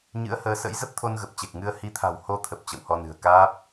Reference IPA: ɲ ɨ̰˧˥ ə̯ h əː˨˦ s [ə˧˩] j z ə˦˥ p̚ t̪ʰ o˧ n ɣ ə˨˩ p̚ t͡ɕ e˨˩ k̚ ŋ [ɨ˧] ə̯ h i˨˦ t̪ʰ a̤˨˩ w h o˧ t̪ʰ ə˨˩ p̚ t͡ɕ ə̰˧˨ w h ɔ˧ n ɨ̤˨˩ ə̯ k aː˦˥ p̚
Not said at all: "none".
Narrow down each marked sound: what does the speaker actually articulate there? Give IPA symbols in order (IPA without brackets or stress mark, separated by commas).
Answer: ə̰˧˥, ɨ˧